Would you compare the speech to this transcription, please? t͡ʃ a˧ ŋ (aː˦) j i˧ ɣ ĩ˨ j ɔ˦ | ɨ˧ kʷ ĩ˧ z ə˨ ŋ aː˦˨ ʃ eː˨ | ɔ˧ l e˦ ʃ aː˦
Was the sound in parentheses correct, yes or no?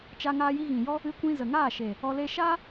no